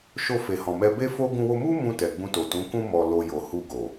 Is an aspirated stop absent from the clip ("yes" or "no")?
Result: yes